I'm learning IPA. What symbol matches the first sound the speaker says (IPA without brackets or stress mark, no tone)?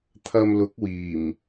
t̪ʰ